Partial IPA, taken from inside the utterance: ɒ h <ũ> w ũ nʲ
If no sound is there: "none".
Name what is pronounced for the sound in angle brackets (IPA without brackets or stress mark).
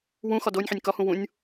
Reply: ũ